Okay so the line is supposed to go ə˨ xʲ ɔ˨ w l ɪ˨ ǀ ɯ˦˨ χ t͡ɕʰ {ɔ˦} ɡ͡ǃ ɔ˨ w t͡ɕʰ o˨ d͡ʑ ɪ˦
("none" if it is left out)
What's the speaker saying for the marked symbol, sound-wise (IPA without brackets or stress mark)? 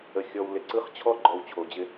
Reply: ɔ˦